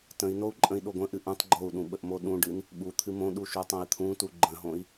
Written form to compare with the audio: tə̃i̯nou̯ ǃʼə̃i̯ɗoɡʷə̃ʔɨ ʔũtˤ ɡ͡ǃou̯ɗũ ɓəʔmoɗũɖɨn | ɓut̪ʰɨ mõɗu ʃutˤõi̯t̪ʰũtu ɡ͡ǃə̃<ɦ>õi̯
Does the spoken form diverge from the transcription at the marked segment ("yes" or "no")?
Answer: no